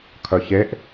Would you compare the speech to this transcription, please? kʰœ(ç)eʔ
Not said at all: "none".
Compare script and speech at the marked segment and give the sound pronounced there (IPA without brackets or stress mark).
ç